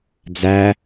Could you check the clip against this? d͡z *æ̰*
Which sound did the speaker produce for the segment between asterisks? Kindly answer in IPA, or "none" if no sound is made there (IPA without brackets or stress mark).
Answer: æ